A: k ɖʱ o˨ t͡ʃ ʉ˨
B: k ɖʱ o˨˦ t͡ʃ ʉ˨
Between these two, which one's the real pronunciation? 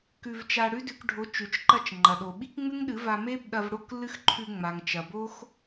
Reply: B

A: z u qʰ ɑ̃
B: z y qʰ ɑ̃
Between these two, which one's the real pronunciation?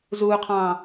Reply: A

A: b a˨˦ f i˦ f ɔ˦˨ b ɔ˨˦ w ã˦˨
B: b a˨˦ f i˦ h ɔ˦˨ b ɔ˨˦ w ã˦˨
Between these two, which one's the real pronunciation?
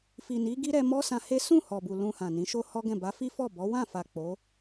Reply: A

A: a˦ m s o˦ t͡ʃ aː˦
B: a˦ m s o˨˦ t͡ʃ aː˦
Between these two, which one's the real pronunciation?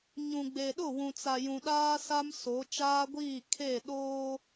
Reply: B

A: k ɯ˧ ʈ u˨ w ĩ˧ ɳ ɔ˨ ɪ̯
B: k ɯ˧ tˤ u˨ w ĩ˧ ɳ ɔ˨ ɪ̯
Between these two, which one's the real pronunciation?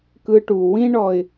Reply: A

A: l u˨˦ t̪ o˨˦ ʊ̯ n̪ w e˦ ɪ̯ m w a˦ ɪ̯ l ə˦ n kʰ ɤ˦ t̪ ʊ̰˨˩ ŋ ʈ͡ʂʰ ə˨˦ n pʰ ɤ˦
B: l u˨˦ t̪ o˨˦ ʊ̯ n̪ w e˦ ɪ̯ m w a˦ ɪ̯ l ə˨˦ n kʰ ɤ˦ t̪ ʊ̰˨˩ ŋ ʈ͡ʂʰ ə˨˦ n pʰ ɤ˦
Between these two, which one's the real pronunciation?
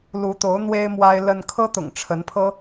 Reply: A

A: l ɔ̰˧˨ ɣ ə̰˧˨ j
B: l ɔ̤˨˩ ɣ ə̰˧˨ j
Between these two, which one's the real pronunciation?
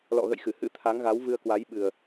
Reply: A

